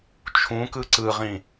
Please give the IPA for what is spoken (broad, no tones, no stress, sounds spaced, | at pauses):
t͡ʃʰ ũ k ɯ ǀ ɯ ʁ ĩ